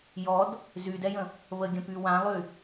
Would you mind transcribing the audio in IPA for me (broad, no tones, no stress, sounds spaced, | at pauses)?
j ɔ d | z y d ɛ j ə̃ | β ə ɡʲ ə̃ p y w ã lˠ y